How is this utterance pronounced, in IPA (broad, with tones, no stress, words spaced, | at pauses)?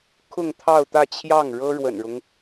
kʰʊ˥˧ŋt̪ʰɑ˥˧ʊ̯t̪ä˥˧t͡ɕʰjɑ˥˩ŋ ɻɤ˥ɻwə̰˨˩nɻʊ˦ŋ